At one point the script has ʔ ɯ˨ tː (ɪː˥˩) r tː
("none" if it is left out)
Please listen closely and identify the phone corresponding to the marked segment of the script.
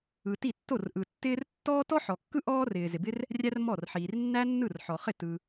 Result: ɪː˥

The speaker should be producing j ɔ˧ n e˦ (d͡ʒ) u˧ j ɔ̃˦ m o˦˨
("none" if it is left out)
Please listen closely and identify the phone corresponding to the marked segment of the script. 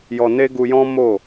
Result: ɡ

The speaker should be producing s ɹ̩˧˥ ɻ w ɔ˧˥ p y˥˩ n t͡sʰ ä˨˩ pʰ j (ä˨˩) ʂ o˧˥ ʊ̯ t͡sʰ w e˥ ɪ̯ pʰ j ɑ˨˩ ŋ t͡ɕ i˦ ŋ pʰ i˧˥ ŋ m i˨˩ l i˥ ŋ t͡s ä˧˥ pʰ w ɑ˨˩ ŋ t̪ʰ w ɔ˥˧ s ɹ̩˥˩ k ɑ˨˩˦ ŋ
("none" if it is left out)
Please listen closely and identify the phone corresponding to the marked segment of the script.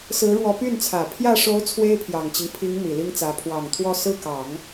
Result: ä˥˩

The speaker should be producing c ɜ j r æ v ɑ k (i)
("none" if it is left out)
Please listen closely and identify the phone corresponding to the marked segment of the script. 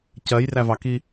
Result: i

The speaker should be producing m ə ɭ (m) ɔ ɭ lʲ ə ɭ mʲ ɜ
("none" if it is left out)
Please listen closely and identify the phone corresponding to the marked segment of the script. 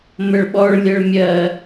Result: ɓ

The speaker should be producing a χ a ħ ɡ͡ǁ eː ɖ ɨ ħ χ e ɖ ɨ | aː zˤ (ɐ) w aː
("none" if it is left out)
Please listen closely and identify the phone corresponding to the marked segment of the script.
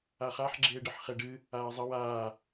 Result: ɐ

